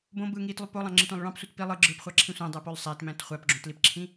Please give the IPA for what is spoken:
b õ b ɯː ŋ iː t lˠ y p o lˠ ɑ̃ ŋ͡ǁ i tʷ ɑ̃ lˠ ɭ ɑ̃ p sʷ ɯ t p i lˠ ɯ ɡ͡ǁ ɯː p χʷ ɑ ǁʰ ĩ sʷ æ̃ dˤ æ p o lˠ sˤ æ t m æ̃ t χʷ æ p ɡ͡ǁ õ t l i p ǁʰ ĩ

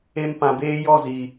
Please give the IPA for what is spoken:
e˧ m p ã˨ b eː˧ j ɔ˦˨ z i˨

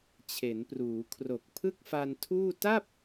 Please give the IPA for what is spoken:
t͡ɕʰ e˩˦ n p r uː˩˦ kʰ r o˨˩ k̚ pʰ ɯ˥˩ k̚ f a˧ n tʰ uː˥˩ t a˥˩ p̚

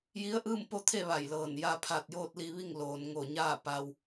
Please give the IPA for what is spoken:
j i˧˥ ə̯ ʔ ɯː˥˨ m p o˥˨ t̪ʰ e˥˨ ʋ a˧˩ j l ɤː˧˩ n j a˧ pʰ a˧˩ t̚ j oː˥˨ t̚ l i˧ ʋ i˥˨ ŋ l oː˩ n ŋ o˧˩ ɲ aː˥˨ p a˧ w

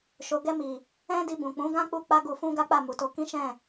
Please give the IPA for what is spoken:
ʃ o˨ ɡ ɛ˧ m i˨ | ɛ̃˦ d i˧ b ũ˨ k͡p ũ˨˦ ɡ ã˦ k͡p u˧ k͡p a˦ ɡ u˧ f ũ˦ ɡ a˦ k͡p a˦˨ m u˨ t o˨˦ k ĩ˦ ʃ ɛ̃˦˨

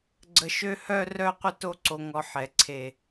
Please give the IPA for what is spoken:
ɡ͡ǀ ə˧˩ ʃ ø˥˧ h œ˥˧ r œ˥˧ qʷ ə˥˧ t o˥ ǀ o˧ ŋ ɔ˧ ħ ɛ˩˧ ǀʰ e˧˩

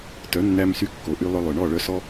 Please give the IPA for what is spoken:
t œ˨˦ nː æ˧ m s y˧ kː o˨ ʔ y˧ lˠ œ˧ lˠ œ˨ ɳ ɔ˦˨ ɭ œ˧ s ɔ˧

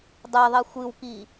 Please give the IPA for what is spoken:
dˤ e ðˤ i xʷ ɨ w k i

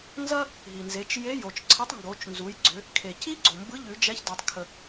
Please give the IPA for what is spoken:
n z ɐ˥ | ɦ i˩ n z e˩˧ t͡ʃ j e˧˥ j o˩ t͡ʃ ǀʰ ɐ˧˥ tˤ ŋ ɡ o˩˧ t͡ʃ n z u˩˧ j ɡ͡ǀ ʏ˩˧ | kʰ e˩ c i˥ ɡ͡ǀ o˩ m b ɯ˧˥ ʎ ʉ˩˧ d͡ʒ ɛ˧˥ ç d o˩ tˤ kʰ ə˩

